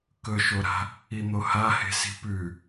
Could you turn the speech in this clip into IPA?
k ɵ ʃ o ɾ a̤ | i n̪ o h a h e̤ s i̤ p ʉ

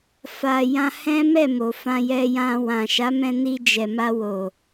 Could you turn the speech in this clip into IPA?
f a˨ j ã˧ h ɛ̃˦ m ɛ˦˨ m o˨ f ã˧ j ɛ˧ j ã˧ w ã˨ ʃ a˨˦ m ɛ̃˧ n i˧ d͡ʒ ɛ˨ m a˧ w o˨

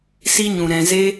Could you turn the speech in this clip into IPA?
s i˧ ɲ ũ˨ ɾ ɛ̃˨ z e˧

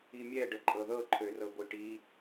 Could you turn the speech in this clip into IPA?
i mʲ ɛ ɖ ə ǃʼ ɤ ð ɤ ǃʰ ø r ɤ ɡʷ i ʈ i

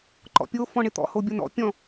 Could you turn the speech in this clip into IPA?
ǃ ɔ̰ pʲ o f ɔ̃ ɳ ɪ t̪ ɔ̰ h o bʲ o n ɔ̰ pʲ ɔ̃

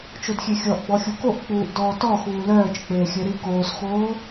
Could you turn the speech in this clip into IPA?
t͡ʃ o d xʲ e xʲ ɔ ʔ ɡ͡b ɔ xʲ u k o ʔ k͡p uː ʔ d ɔː t ɔ x uː l œː t͡ʃ k͡p eː xʲ œ ɾ i k oː s x oː

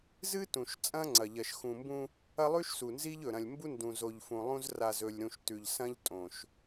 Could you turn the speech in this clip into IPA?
z ɨ˦ t ũ˨ ʃ t͡sʼ ɐ̃˦ ŋ͡ǀ ɐ˨ ʎ ɐ˨ ʃ x ũ˨ m b ũ˦ | ɐ˦ lˠ ʉ˦ ʃ s u˨ n z i˦ ʎ ɵ˨ ɾ ɐ̃˨ lʲ m b u˦ n d ũ˨ z o˨ ʎ f ũ˨ lˠ ũ˦ z r a˨ z ɵ˨ lʲ ɾ ũ˨ ʃ t ʉ˨ ʎ s ɐ̃˦ ʎ tʼ õ˨ ʃ

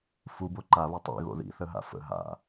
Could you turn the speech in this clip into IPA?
f u b o ǃ a β ɘ tˤ ḭ ɣ o̰ ð ḭ θ ə ɦ a̰ f ə̰ ɦ a̰

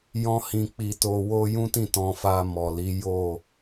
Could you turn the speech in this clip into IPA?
j ɔ̃˦ h ĩ˧ k͡p i˧ t o˧ w o˧ j ũ˦ t ĩ˦˨ t ɔ̃˧ f a˧ m ɔ˨ l i˨˦ j o˦˨

